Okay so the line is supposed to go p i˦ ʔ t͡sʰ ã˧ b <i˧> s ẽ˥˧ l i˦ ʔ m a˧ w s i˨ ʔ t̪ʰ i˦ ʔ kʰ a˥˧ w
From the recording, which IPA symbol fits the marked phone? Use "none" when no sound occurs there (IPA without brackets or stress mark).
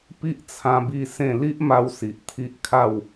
i˥˧